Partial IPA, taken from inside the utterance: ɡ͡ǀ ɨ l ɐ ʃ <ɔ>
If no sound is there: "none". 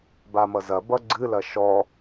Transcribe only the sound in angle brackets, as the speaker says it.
ɔ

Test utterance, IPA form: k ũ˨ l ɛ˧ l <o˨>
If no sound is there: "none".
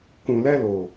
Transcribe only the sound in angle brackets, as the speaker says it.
o˨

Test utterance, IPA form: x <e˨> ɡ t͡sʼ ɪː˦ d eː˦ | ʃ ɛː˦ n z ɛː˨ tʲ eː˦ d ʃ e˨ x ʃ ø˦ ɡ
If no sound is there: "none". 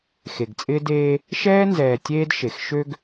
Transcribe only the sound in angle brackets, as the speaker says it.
e˨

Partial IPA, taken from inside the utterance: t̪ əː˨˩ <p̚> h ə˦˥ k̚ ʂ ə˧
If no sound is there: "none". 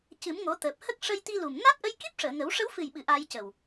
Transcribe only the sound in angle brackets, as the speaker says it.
p̚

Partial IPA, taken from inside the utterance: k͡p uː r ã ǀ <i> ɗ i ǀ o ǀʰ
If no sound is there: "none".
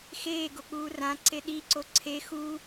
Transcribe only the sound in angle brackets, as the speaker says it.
e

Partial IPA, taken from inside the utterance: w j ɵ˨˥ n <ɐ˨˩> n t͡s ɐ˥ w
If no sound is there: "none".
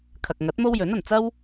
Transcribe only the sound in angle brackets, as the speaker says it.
ɐ˨˩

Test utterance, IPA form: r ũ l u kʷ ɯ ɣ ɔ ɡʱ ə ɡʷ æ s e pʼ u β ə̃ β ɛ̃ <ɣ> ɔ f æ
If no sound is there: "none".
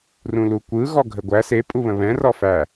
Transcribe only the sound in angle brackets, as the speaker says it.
r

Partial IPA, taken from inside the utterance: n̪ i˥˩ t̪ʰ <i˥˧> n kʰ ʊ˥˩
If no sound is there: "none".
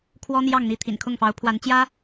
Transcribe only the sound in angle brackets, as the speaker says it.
ḭ˨˩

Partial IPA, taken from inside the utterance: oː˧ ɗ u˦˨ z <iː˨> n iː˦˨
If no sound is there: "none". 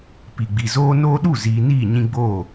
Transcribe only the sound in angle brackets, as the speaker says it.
iː˨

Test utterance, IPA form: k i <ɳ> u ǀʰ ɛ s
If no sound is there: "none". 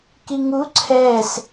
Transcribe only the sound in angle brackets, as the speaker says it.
ŋ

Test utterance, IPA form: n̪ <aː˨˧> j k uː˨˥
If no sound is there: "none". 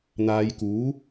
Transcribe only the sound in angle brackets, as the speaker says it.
aː˨˧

